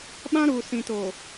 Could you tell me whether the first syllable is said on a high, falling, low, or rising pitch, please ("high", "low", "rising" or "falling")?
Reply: high